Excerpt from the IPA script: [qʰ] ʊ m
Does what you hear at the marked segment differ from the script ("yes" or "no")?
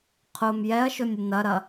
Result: no